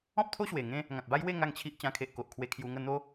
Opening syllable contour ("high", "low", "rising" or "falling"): high